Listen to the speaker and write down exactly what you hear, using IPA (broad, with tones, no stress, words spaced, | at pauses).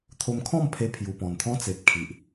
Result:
t̪ʰo˧mkʰɔ̃˥˧mpʰe˧ pʰju˨˩pɔ̃˨˩n t̪ʰɔ̃˦t͡se˨p̚kʰi˨ʔ